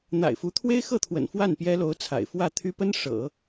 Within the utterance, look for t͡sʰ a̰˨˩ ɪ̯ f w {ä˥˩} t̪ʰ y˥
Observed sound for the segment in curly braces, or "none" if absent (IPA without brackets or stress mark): ä˥˩